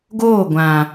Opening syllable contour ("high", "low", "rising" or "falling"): falling